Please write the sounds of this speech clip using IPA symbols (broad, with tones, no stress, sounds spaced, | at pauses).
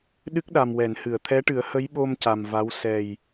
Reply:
ɗ ɨ˦˥ k̚ ɗ a˨˩ m w ɛ˨˩˨ n h ɨ˨˩˨ ə̯ t̪ʰ ɛ˧˥ ʈ ɨ˨˩˦ ə̯ h ə˧˥ j ɓ o˧ m c a˨˩ m v a˧˥ w s ɛ˨˩ j